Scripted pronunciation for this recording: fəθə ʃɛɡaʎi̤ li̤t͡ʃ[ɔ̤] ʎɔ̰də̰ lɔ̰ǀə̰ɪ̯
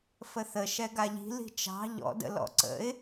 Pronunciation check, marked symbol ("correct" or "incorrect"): incorrect